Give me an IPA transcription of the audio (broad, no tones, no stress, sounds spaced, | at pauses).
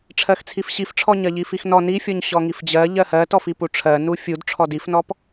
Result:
ʈ͡ʂʰ ɜ x t͡sʰ i f ɕ i f ʈ͡ʂʰ ɔ ɲ ɜ ʎ i f i x n ɔ n i fʲ ɔ ɲ ɕ ɔ ŋ i f d͡ʑ ɜ ʎ ɜ h ɜ t ɔ f i p u ʈ͡ʂʰ ɜ n u fʲ u d ʈ͡ʂʰ ɔ d i f n ɔ p